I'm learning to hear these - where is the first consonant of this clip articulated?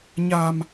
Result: palate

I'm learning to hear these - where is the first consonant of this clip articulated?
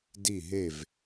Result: tongue tip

